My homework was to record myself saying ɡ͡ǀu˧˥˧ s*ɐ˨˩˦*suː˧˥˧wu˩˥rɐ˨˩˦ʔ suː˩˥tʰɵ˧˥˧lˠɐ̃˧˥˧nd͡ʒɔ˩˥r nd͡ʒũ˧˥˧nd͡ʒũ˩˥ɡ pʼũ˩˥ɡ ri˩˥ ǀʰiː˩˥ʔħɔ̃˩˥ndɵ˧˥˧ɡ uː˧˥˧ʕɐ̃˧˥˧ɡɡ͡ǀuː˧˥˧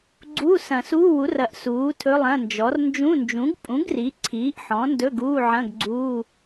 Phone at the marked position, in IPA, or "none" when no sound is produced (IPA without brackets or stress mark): ɐ̃˨˩˦